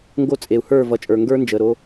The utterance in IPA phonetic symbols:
ŋ ɡ o˥˩ t͡sʼ e˩ u̯ h ə˞˥˩ v ʌ˩˧˩ t͡ʃʼ ə˞˩ ŋ ɡ ə˞˦˥ n d͡ʒ ə˩˧˩ ɾ o˧

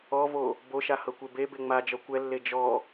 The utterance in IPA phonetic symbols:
ɔ v o | b o ʃ a h ɤ kʷ e b e b e ŋ͡m a d͡ʒ ɔ kʷ ɛ lː e d͡ʒ ɔ

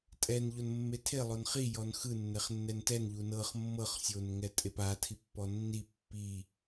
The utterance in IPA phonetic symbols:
tʼ ɛ n ʎ o n mː e tʰ e lˠ o n χ i j ɔ n x ɯ nː ɛ χ nː ɛ n t ɛ n ʎ u n ɤ χ mː ɤ χ sʲ o n ŋ ɛ tʼ e p a tʰ i pː ɔ nː i pː i

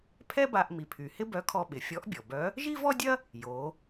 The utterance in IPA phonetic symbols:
pʰ ɛ˥ b a˧ ʔ m i˩ pʰ y˩ h ɪ˥ b œ˧˥ kʰ ɔ˧ ɓ ɪ˩ fʲ ɔ˧˥ ʔ bʲ ɔ˩ b œ˧˥ | ʒ i˥ v ɔ˥ dʲ ɐ˥ | j o˩˧

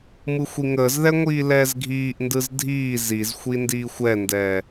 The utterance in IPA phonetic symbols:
m ɯ xʷ i ŋ əː z ð ɛ ŋʷ iː l ɛː z ɡʱ iː ʔ n d ɯ z dʱ iː z i z xʷ i n d iː xʷ ɛ n d ɛː

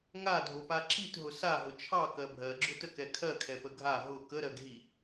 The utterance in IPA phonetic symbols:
ŋ a dʱ o p a ǁ i t ɦ ʊ s a ɦ ʊ t͡ʃʰ ɑ k ɜ bʱ ɜ ɡ͡ǁ ʊ t ə k ɛ kʰ ɜ kʰ ɛ p ə ɡʱ a ɦ ʊ k ə ɾ ɜ ɡ ɦ i

